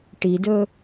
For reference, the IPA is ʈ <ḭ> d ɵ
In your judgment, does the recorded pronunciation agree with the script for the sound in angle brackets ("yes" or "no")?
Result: no